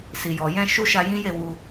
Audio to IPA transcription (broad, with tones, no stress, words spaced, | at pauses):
si˨jɔ˨jɛ̃˧ ʃu˦ʃa˧jĩ˦je˦˨ wu˧